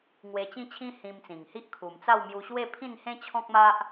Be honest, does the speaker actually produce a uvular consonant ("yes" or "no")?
no